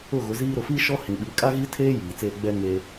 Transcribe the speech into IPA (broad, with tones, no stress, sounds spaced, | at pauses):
ʊ˦˨ ɣ ʊ˨˦ z iː˦ ɾ ʊ˨ f i˦ ʃ ɔ˦ h ĩ˨ ɓ i˨˦ kʼ a˦ ɣ i˦ tʰ eː˦ j iː˨ t͡s eː˦ ɡ͡b ɛ˦ ŋ e˦